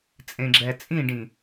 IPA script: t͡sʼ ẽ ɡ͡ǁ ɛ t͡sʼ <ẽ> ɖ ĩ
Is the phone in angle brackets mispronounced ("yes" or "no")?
yes